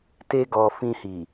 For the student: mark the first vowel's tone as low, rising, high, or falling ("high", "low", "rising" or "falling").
high